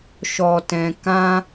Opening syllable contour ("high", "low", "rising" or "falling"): low